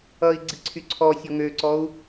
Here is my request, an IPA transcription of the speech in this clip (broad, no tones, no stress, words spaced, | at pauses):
ʌi̯ ɡ͡ǀiǀʰyǀʰɔsʲɔ ŋøǀɔu̯